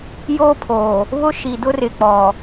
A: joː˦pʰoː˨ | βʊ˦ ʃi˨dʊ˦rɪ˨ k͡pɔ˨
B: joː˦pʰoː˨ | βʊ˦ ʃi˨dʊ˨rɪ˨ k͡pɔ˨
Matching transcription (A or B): A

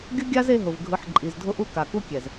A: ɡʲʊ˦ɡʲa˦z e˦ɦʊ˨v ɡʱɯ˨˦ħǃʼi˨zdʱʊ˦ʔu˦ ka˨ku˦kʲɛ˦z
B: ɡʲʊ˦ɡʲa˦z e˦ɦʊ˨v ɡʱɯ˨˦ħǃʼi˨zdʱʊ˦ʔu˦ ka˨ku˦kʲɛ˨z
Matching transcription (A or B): B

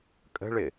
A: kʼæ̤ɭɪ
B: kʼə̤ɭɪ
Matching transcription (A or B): B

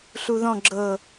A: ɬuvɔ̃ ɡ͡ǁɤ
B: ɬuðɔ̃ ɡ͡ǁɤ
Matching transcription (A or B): B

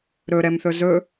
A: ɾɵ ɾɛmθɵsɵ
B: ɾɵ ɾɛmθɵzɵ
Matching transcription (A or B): B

